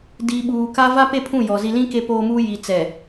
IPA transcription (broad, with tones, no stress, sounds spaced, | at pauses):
d iː˨ ɓ uː˨ k a˦ v a˦ p e˦˨ pʰ ũ˦˨ j ɔ˨ z i˨ l ĩ˦ k e˦ p oː˦ m uː˦ j i˨ t͡s ɛ˨